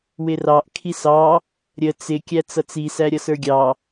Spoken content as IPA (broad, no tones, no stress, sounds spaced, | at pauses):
w ɪ r ɑ ʔ kʰ i s ɑ | ɾʲ ə t͡s ɪ kʲ æ t͡s ʌ t͡s i s æ ɾʲ ʌ s ə˞ ɡʲ ɑ